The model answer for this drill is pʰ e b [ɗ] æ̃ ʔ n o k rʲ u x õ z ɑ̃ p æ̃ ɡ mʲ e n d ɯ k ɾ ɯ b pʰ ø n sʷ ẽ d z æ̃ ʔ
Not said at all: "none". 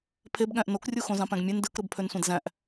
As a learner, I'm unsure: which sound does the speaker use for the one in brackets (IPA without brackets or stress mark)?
ɠ